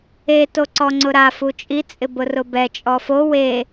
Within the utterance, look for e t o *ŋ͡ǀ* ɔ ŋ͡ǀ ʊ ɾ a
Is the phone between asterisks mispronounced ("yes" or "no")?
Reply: yes